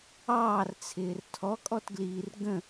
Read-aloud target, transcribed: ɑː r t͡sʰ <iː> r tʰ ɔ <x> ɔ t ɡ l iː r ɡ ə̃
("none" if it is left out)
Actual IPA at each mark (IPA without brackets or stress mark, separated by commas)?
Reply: ɪː, kʼ